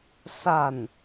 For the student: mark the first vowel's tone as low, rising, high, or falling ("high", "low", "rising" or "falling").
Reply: falling